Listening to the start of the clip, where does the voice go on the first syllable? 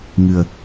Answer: low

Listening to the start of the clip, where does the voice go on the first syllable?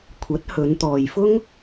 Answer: rising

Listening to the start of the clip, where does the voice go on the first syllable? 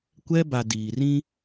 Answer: high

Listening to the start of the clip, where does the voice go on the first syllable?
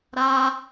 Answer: high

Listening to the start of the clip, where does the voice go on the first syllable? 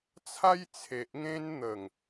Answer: high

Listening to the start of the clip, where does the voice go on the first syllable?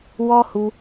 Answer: high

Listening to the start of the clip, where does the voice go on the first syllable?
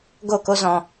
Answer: falling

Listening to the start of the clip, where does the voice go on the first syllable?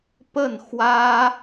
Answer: falling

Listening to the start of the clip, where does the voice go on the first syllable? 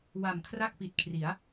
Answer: low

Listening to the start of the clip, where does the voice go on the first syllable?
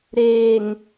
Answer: low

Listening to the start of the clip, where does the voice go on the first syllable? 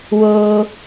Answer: high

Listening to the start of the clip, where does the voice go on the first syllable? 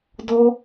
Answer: high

